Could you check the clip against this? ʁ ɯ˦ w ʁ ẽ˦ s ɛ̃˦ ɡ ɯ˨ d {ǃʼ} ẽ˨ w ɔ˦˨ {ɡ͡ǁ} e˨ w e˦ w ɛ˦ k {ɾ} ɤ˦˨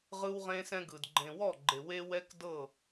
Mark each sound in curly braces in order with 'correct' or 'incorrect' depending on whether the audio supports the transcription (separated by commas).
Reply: incorrect, incorrect, incorrect